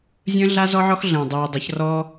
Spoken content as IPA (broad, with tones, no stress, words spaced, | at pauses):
zʲə̃ː˦ɮa˦ zɔ˦ʕɔ˦xɮə̃ː˨ dˤyː˨dˤə˨˦çrɔ˦